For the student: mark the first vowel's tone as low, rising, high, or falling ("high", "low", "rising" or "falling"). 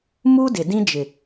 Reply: high